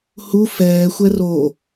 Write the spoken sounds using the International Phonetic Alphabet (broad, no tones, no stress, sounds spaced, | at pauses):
h u f ɛː xʷ ɛ r o